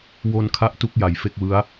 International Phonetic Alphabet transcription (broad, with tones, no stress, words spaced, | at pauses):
wo˧n kʰa˥˩ʔtu˦˥k̚ ja˩˦jfe˥˩k̚wɯ˦˥a̯